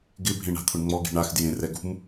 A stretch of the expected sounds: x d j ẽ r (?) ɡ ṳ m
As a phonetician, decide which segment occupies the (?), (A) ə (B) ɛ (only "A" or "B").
B